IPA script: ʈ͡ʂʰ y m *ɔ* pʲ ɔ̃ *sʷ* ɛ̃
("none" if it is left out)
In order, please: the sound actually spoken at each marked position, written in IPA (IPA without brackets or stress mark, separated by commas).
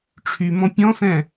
ɔ̃, s